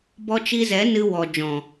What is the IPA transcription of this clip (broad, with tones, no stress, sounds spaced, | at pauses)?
b ɔ˧ t͡ʃ i˧ z ɛ˨˦ n ɨ˧ w ɔ˨ d͡ʒ ɔ̃˨